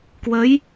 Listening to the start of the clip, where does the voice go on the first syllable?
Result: rising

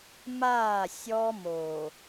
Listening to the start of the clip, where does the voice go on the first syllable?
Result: falling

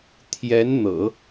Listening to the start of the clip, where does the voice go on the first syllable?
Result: rising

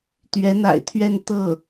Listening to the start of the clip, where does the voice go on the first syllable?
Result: rising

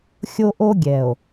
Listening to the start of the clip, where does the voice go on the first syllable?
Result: high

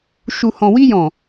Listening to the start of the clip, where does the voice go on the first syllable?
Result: low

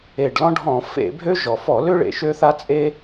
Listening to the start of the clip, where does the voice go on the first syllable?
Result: low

